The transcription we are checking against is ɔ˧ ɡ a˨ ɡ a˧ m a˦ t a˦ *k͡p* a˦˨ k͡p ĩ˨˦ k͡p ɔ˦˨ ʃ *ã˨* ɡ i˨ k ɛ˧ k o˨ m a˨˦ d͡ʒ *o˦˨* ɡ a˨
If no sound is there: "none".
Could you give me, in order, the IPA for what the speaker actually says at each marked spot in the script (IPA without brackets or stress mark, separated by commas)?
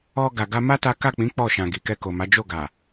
k, ã˨, o˦˨